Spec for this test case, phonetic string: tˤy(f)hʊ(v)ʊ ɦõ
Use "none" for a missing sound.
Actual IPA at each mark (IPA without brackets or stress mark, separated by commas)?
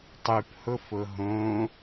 p, f